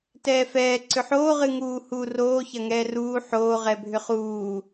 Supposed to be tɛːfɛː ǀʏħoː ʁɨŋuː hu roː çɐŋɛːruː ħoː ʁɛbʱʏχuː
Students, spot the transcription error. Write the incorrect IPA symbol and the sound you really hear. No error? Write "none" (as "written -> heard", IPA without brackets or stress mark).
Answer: none